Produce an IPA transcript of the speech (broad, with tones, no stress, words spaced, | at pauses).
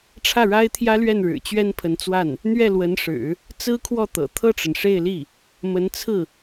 ʈ͡ʂʰä˥˩ɻa˥ɪ̯t̪ʰjä˥lɥɛ˥˩n ɻɻ̩˨˩t͡ɕɥɛ˥npʰə˧˥nt͡swa˥˩n | n̪ɥɛ˥˩lwə˧˥nʂɻ̩˨˩˦ | t͡sɹ̩˥kʰwɔ˥˩t̪ɤ̰˨˩ t̪ʰɤ˥˩ʈ͡ʂə˩n ʂe˥˧ɪ̯li˥˩ | mə˧˥nt͡sʰɹ̩˥˩